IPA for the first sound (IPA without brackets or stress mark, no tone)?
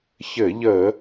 ç